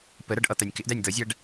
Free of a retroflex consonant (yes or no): no